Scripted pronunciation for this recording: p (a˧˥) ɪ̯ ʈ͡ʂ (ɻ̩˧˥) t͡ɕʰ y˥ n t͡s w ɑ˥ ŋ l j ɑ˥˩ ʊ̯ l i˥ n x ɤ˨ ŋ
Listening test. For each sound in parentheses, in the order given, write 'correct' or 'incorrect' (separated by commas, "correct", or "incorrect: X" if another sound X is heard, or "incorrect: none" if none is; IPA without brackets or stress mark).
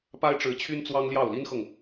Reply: incorrect: a˥, correct